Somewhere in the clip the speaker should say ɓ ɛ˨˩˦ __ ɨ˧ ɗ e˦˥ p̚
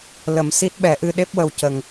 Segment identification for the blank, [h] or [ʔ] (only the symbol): ʔ